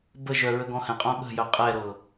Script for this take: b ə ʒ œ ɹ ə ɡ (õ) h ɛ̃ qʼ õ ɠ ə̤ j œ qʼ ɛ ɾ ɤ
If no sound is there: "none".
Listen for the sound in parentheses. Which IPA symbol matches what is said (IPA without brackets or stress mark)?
ɔ̃